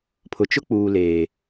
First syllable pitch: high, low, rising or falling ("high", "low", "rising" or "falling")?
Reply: low